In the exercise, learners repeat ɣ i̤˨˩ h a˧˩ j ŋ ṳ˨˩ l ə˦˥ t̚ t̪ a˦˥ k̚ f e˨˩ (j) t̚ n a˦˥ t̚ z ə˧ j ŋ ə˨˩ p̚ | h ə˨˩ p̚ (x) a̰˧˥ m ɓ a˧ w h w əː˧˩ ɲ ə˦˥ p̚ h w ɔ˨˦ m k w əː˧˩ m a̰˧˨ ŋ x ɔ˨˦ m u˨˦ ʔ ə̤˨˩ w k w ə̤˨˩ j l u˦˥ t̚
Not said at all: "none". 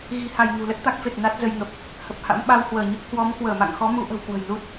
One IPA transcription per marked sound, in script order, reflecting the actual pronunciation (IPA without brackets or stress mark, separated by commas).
none, h